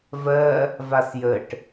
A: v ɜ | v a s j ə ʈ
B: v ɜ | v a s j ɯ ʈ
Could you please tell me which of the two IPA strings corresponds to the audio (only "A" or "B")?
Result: A